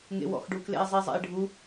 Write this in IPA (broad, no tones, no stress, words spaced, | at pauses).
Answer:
ŋḛwɔ̰xɖuklḛi̯ zˤezˤḛi̯ɖʱu